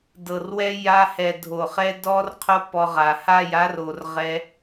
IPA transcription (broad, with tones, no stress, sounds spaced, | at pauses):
d ɤ˨ r w ɛ˦ j a˧ h ɛ˨ dʱ o˨ χ ɛ˦ d ɔ˦ r qʰ o˦ p ɔ˧ ʁ a˨ h a˦˨ j a˦ r o˨ r ʁ ɛ˦